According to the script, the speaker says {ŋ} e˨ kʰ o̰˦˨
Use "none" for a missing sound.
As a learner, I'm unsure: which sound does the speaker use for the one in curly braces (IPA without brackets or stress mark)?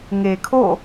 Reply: ŋ